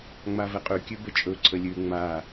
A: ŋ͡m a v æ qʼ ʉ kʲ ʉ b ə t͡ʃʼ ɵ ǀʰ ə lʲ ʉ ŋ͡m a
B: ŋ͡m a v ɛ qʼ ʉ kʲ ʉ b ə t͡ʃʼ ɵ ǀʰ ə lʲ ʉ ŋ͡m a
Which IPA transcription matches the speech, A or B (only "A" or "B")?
B